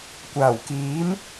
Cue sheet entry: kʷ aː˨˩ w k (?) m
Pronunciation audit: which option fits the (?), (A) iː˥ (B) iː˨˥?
B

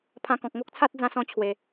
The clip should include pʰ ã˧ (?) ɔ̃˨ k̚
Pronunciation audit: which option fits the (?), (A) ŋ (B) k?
B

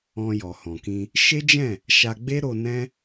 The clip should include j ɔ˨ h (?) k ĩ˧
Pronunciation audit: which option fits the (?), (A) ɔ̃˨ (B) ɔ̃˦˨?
A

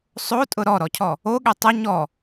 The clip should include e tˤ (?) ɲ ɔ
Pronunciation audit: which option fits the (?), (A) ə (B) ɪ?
A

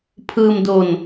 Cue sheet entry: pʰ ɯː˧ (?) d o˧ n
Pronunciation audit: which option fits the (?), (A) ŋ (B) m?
B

